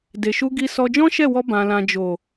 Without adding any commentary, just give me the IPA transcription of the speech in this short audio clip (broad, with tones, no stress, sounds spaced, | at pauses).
d e˨ ʃ u˧ ɡ i˧ s ɔ˧ d͡ʒ ɔ̃˦ ʃ ɛ˦˨ w ɔ˧ b ã˨ l ã˨ d͡ʒ o˨